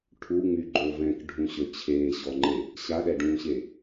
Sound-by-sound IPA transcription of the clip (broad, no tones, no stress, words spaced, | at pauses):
ʈʰuŋ͡myɡ͡ǃo vɛ̃kɖʱũɕø t͡ɕʰeːɕɔŋ͡ǃe | ɕaɗɛɖũːɕe